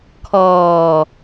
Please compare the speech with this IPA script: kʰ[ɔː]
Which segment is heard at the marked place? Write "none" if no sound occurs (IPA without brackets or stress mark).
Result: ɔː